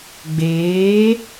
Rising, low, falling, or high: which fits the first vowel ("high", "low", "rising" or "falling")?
rising